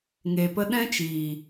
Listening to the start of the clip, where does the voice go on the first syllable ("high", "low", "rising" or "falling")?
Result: low